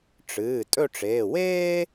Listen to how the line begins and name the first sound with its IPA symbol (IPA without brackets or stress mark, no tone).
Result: ʈ͡ʂ